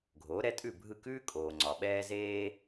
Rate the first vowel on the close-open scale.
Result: mid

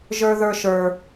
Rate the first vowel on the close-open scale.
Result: mid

